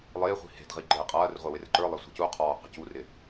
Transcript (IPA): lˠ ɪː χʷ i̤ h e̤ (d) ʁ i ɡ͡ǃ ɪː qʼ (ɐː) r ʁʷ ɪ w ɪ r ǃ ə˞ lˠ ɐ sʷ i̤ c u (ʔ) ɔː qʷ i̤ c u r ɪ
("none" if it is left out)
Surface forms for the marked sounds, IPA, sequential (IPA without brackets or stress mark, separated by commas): d, ɐː, qʰ